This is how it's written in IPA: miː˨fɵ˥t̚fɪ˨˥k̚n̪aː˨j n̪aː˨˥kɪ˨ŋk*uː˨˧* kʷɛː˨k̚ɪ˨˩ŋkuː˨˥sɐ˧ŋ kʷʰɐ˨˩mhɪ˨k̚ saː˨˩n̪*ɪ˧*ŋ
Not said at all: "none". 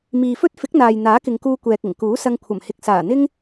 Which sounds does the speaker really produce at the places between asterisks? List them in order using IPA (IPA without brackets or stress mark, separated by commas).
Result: uː˧, ɪ˥